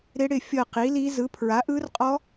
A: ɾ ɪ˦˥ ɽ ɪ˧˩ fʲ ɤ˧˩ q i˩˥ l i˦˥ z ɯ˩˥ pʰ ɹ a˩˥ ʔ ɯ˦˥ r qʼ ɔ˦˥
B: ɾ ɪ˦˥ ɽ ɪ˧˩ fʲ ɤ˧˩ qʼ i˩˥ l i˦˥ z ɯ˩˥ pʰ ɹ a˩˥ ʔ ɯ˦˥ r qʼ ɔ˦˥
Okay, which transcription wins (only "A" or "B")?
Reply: A